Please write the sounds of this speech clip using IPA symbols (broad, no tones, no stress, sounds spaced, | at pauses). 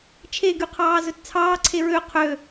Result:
t͡ʃʰ e ɡ y qʰ ɑː z ɵ t t͡sʰ ɑː ǀʰ e ɹ ø qʰ ø